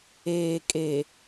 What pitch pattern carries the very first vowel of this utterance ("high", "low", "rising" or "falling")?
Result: low